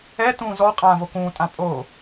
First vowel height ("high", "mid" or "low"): mid